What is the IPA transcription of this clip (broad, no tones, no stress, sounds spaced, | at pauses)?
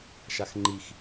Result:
ʃ a x ŋ͡ǃ i x